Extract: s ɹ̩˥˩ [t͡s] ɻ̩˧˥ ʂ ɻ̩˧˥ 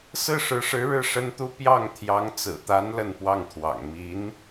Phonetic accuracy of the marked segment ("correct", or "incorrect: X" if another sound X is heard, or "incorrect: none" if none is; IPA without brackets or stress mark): incorrect: ʂ